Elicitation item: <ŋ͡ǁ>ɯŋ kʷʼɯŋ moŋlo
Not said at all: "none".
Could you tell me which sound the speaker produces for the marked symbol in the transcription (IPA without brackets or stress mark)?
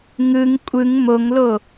ŋ